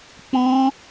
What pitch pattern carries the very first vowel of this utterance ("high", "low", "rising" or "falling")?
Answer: high